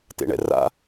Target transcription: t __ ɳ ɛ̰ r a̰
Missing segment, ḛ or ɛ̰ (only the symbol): ḛ